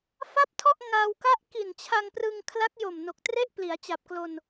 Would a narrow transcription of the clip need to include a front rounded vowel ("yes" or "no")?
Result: no